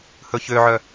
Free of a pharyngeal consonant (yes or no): no